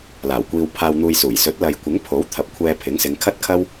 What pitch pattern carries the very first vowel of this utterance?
low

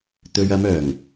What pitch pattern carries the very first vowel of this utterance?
low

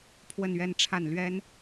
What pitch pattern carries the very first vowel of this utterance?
falling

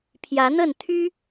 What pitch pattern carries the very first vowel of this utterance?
rising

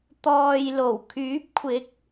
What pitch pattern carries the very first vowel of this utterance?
low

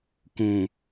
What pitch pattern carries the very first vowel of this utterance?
low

